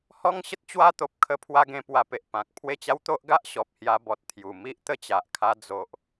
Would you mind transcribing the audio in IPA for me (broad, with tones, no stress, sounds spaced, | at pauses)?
h ɔ˦ ŋ ɕ ə˦ t̚ t͡ɕ w a˦ t̪ o˨ p̚ kʰ ə˦ pʰ w a˦ ɡ ẽ˧ p w a˧ p e˨ ʔ p ã˨ k̚ pʰ w e˥˧ t͡ɕ a˦ w t̪ o˦ ʔ ɡ a˦ ʔ ɕ ɔ˨ p̚ h j a˧ b ɔ˨ t̚ t̪ʰ j u˨˩ m i˦ ʔ t̪ ə˦ t͡ɕ a˨ ʔ kʰ a˧ d͡z o˨ ʔ